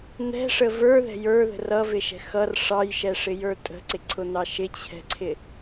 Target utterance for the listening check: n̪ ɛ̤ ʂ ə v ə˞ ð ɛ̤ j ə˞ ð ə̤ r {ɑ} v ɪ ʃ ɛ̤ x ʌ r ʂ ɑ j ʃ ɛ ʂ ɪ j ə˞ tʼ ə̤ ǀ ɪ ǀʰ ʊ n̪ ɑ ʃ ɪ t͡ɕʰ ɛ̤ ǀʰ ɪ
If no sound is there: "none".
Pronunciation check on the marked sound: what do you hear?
ʌ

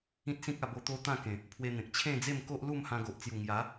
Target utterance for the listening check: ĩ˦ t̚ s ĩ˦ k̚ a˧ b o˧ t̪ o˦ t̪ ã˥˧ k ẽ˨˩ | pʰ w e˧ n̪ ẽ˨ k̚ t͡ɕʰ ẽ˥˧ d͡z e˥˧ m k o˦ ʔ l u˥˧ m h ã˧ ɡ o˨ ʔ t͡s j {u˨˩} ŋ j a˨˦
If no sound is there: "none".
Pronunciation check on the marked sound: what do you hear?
u˨˩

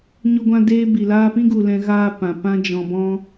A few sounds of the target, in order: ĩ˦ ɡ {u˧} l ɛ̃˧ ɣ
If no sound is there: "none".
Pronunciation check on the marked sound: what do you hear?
u˨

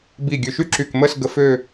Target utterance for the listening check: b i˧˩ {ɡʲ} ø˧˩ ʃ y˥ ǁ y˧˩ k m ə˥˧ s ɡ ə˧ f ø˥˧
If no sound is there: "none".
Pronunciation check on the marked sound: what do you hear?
ɡʲ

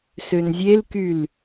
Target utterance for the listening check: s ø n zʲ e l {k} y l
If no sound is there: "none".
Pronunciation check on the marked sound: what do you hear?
k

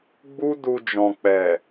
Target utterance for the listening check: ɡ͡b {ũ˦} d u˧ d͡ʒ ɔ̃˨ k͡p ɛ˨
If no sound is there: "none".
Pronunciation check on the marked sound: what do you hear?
u˦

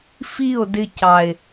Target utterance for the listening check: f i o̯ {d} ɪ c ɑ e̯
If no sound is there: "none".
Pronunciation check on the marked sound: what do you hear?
d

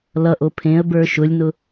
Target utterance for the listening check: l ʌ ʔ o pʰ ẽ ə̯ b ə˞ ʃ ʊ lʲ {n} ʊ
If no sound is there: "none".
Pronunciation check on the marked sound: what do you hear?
n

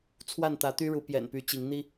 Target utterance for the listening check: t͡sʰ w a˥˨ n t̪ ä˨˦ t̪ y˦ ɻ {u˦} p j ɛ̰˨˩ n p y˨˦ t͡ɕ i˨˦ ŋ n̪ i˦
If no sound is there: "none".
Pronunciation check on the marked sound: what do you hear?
u˨˦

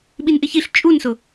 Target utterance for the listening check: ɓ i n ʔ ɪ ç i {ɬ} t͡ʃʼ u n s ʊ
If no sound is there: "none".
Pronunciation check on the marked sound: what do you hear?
ɬ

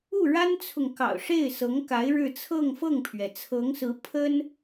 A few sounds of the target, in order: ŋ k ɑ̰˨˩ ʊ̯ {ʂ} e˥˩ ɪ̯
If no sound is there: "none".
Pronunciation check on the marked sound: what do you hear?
ʂ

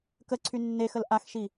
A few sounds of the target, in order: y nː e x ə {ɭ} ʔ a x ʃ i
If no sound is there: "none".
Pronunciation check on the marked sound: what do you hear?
l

